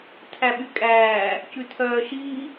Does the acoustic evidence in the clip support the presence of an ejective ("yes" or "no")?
yes